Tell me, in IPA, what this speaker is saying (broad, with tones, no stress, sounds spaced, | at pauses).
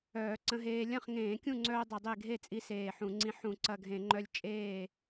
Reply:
œː˧˩˧ ǀ ə̃˧ ɦ eː˧ lʲ ɐ̃˥˩ χ ŋ ẽː˧˩˧ kʲ ũ˥˩ ŋ͡ǀ œː˧ dˤ ɐ˧ dˤ e˥˩ ɡʱ e˥˩ t͡sʼ i˧ s eː˧˩ ħ ũ˧˩˧ ŋ͡ǀ ĩ˧ ħ ũ˧˩˧ ǀ ɐ˧˩ ɡʱ ẽ˧˩˧ ŋ͡ǃ œ˧ lʲ t͡ʃʼ eː˧˩